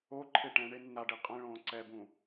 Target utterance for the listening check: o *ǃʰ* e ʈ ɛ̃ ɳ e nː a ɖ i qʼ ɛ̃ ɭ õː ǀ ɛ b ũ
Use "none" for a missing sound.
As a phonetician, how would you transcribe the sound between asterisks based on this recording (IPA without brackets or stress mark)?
ǃʰ